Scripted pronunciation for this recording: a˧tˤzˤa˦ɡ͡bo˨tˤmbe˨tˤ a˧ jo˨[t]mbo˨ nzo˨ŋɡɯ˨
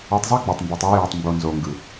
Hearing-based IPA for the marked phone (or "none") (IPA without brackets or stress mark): tˤ